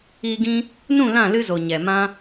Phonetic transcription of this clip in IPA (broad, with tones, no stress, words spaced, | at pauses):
iː˧ɡĩ˦ | nũ˦˨lã˦˨ lɨ˧zo˨ ɲɛ˨ mã˦